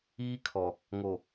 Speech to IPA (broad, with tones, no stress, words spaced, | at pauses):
iː˦kʰɔ˨ | ŋo˨